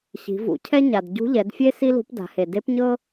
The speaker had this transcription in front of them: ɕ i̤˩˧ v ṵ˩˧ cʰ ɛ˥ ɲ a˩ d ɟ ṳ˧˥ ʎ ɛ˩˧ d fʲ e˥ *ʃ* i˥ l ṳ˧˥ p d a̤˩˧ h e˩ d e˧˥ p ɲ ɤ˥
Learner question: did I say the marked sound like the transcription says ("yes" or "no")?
no